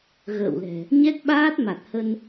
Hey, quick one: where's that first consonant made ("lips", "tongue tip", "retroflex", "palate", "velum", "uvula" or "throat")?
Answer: velum